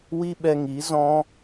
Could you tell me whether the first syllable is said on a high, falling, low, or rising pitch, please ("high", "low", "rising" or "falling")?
high